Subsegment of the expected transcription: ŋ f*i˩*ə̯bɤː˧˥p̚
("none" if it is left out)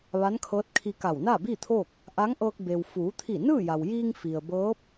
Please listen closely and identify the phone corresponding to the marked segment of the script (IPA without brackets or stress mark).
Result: i˩